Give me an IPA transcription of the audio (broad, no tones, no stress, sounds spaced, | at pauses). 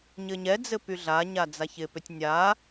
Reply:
ɲ ɘ ɲ ɛ d͡z ɘ p y ɮ a ɲ a d͡z a ç ɪ p ʏ tʲ nʲ a